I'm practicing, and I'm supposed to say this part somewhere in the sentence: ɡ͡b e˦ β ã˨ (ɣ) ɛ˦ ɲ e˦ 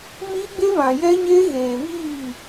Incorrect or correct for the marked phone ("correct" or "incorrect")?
incorrect